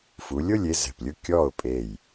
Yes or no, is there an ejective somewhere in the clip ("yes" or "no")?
yes